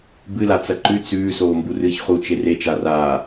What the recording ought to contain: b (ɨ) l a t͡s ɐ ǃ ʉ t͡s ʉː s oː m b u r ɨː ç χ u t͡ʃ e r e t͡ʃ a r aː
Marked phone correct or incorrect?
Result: correct